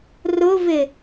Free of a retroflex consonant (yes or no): yes